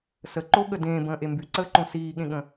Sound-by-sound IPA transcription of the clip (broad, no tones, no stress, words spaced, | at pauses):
səǃoɠə dẽːbə̃ːʔe mbyǀəːǃõ siːɠẽɠə̃